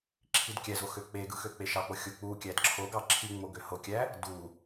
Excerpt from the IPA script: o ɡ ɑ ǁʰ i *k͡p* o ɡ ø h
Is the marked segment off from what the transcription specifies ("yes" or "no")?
yes